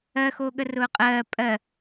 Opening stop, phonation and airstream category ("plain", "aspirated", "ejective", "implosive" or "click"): implosive